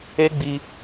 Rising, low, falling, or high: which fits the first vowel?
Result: high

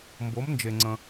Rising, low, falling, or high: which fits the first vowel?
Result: rising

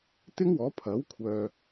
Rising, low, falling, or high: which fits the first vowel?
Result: high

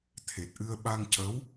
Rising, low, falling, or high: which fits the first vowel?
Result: low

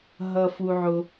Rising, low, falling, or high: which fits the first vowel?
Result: high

